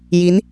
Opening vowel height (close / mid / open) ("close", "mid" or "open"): close